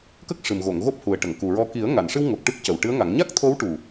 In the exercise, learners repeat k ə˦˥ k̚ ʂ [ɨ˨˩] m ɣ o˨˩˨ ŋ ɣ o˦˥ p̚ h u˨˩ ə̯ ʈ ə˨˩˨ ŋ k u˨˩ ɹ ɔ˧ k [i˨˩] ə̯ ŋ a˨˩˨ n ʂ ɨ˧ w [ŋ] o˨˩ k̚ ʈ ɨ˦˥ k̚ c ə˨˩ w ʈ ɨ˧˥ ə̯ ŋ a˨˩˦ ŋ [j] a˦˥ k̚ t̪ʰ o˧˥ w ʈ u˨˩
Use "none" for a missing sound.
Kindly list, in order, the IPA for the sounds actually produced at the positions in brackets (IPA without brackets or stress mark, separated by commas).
ɨ˨˩, i˨˩˦, ŋ, ɲ